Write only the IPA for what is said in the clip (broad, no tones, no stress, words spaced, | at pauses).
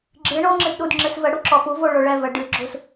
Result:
ɡ͡ǁɨ ɳoŋ͡ǁɨd ɗudŋ͡ǁɨsvəɽu ǁɔfuvo ɭoɭɛvə ɖɨɡ͡ǁus